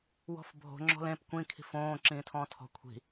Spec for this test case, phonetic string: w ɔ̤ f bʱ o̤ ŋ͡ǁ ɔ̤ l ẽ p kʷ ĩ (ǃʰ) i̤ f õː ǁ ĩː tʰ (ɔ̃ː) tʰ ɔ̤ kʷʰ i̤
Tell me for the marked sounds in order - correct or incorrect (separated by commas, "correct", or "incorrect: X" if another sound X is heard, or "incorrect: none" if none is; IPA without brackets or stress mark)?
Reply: incorrect: kʰ, correct